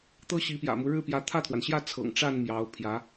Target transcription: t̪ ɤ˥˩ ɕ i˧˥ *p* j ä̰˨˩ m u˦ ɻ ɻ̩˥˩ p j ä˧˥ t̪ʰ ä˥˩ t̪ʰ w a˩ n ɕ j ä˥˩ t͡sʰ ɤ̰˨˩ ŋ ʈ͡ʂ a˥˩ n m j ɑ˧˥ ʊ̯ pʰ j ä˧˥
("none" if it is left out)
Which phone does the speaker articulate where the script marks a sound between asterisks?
p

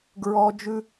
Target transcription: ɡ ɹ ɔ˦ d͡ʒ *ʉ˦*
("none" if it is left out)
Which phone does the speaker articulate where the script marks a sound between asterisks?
ʉ˦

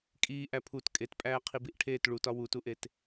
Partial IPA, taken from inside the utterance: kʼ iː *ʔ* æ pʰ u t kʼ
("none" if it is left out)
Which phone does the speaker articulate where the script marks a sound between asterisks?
ʔ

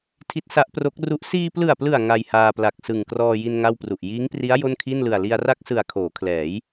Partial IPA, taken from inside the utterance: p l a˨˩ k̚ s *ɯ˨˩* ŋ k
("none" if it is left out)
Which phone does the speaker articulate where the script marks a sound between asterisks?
ɯ˨˩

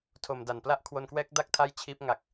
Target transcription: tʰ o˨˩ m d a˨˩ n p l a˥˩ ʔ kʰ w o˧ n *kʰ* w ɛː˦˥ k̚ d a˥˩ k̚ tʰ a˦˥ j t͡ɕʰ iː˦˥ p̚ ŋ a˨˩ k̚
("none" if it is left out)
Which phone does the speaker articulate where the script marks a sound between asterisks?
k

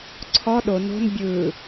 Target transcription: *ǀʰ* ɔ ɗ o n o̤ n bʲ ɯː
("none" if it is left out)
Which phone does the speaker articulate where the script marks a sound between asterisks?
ǀʰ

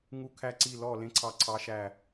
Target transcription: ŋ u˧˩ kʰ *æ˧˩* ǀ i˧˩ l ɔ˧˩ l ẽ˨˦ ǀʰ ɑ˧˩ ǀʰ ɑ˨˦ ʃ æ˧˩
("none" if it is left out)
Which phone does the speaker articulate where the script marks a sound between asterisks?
æ˧˩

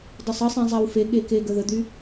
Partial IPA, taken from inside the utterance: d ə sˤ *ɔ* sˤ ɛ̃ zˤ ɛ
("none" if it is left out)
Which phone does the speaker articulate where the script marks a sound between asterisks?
ə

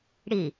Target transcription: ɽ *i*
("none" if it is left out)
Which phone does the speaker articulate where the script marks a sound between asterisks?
i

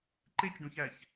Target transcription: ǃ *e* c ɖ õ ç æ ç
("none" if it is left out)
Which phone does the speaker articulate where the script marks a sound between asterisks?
e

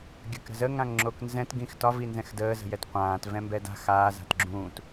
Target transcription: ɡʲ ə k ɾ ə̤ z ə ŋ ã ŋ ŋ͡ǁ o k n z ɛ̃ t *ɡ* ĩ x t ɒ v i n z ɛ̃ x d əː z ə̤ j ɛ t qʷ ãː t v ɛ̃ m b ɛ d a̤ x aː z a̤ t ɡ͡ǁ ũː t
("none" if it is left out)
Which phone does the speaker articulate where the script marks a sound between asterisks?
ɡ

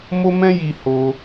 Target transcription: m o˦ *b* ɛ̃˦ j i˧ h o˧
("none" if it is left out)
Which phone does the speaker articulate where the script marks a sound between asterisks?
m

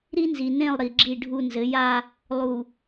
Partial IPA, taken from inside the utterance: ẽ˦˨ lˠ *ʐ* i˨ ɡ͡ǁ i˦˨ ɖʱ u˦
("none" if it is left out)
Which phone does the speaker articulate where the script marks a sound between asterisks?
ɾ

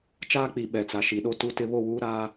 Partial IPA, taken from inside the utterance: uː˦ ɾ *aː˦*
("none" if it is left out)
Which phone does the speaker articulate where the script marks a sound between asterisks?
aː˦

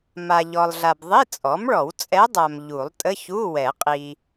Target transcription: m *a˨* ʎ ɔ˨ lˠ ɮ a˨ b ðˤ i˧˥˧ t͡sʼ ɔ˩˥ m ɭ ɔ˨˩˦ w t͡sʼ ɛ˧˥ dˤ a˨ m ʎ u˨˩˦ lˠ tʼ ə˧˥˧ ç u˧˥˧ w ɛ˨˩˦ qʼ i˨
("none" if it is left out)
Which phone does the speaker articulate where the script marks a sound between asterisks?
a˨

